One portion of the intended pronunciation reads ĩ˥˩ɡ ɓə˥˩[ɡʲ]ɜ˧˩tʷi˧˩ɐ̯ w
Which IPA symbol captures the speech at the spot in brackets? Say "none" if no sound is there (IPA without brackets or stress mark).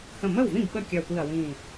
kʲ